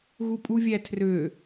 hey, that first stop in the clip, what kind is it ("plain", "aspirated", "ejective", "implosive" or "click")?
ejective